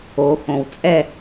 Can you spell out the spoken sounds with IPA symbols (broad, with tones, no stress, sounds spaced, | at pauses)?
o˩˧ x õ˩ w t͡sʼ ɛ˦˨